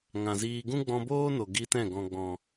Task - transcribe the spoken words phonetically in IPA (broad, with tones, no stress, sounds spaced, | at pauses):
ŋ ã˨ z iː˧ ɡ ũ˦ ɡ͡b ɔ̃˧ b oː˦ n o˨ ɡ i˧ t ɛ̃˦˨ ɡ ɔ̃˨ ɡ͡b ɔ̃˨